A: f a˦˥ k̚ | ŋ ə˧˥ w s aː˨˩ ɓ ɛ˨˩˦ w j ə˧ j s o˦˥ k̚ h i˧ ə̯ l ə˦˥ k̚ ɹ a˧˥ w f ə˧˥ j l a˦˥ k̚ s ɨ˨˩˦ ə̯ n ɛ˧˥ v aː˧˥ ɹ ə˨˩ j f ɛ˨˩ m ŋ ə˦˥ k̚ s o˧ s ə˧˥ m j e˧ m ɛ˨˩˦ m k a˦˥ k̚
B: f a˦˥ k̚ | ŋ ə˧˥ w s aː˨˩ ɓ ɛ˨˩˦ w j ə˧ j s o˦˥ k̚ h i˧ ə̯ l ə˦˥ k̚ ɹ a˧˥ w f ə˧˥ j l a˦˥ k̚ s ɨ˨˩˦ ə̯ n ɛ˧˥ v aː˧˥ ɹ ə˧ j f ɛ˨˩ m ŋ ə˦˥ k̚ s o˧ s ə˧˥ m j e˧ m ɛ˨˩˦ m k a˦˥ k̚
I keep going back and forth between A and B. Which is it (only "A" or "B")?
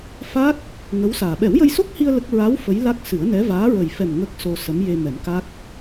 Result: A